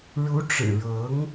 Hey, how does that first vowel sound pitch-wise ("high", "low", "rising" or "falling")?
rising